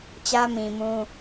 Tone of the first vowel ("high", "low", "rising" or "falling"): high